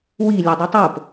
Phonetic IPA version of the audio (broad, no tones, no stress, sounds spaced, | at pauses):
w i lʲ ɛ dˤ ɯ tˤ o p